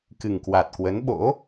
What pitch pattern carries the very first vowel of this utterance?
low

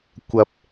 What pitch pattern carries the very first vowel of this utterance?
low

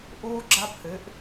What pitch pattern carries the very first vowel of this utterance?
high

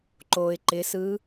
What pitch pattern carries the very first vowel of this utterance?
low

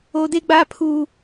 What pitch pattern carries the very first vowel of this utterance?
high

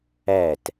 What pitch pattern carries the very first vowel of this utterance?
falling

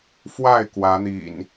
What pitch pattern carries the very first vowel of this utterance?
falling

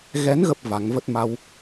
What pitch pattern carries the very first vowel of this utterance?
rising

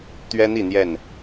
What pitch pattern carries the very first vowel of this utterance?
high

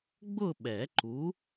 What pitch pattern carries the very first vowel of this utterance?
falling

